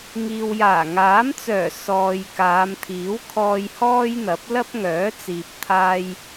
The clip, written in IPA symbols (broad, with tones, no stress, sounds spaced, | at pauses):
ŋ iː˨ w j aː˨˩ ŋ aː˨˥ m t͡s œː˨˩ s ɔː˨ j k aː˨˧ m t̪ʰ iː˨˥ w kʰ ɔː˧ j h ɔː˥ j n̪ ɐ˨˥ p̚ l ɐ˥ p̚ ŋ œː˨˥ t͡s iː˨ p̚ t̪ʰ aː˧ j